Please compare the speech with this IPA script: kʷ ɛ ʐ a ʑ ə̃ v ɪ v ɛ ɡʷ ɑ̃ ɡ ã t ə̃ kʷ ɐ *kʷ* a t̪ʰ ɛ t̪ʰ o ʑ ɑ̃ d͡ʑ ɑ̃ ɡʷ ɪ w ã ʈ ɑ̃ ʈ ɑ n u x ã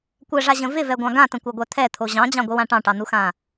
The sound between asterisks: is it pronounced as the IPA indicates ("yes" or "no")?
no